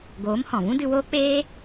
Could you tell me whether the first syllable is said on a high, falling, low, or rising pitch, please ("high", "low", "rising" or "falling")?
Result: rising